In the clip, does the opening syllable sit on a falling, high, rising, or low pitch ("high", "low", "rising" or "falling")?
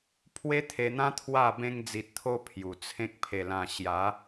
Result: high